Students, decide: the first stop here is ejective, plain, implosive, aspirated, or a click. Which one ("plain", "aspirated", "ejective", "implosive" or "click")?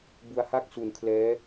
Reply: plain